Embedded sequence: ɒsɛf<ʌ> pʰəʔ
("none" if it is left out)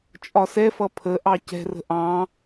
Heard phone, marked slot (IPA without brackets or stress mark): ʌ